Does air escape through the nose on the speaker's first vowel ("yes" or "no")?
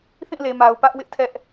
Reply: yes